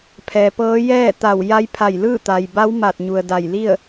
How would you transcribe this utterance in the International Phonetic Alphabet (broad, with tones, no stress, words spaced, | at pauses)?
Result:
pʰɛː˩pɤː˧˥ jɛː˥˨t̪a˧˩w ja˧˥jpʰa˧˩jlɯː˥˨ t̪a˩jba˧˥w ma˧˩t̚ ɲu˩ə̯da˧˩jli˥˨ə̯